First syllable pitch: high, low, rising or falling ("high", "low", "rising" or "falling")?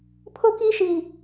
high